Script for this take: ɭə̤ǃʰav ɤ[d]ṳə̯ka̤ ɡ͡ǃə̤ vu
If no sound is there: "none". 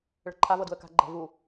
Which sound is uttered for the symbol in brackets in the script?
d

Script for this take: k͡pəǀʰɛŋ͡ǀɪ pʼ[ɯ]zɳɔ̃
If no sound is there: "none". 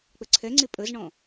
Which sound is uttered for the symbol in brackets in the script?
ə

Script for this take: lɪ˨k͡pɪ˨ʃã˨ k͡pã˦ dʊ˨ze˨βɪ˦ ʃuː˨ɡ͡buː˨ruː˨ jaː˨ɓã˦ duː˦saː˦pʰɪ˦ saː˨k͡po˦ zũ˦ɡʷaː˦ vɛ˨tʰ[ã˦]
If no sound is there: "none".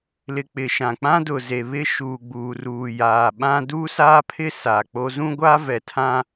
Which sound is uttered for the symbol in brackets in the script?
ã˦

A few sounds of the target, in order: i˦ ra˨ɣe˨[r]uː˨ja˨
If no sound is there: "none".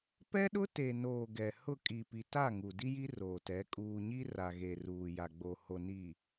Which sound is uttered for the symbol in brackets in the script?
r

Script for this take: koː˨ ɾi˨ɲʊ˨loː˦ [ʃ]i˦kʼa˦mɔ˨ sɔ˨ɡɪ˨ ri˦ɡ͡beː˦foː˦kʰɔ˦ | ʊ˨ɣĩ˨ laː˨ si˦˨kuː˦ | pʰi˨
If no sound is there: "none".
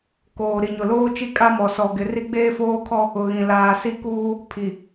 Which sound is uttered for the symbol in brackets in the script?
t͡ʃ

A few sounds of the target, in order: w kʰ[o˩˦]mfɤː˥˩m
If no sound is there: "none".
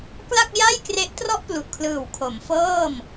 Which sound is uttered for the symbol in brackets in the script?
o˩˦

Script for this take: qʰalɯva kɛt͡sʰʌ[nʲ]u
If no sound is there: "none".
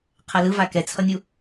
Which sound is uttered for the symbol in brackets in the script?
nʲ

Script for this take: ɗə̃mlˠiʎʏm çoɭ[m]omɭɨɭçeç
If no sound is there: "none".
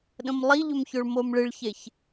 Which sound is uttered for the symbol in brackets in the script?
m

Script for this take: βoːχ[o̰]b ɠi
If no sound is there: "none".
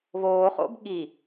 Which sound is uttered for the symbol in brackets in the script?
o̰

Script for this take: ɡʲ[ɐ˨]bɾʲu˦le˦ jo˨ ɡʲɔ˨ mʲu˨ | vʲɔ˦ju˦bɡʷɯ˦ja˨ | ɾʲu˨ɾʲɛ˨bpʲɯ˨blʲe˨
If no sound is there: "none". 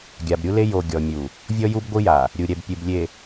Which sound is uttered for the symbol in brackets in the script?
a˨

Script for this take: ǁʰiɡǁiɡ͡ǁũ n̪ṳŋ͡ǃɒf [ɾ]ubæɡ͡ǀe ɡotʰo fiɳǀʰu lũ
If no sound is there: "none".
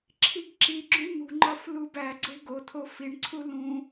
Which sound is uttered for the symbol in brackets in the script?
l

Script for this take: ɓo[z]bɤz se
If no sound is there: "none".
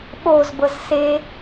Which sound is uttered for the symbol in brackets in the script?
z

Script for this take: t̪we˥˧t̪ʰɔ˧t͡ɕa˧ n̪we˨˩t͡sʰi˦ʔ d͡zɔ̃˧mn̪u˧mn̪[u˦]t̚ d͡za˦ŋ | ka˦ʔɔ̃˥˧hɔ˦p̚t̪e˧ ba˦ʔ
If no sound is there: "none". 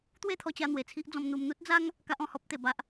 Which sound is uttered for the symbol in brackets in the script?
u˦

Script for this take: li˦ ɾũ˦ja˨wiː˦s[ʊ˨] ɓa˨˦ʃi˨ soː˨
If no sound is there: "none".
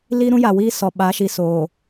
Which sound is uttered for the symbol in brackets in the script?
ɔ˨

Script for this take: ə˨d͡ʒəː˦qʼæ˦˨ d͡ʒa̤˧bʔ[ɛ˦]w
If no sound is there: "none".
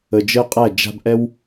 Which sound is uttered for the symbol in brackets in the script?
ɛ˦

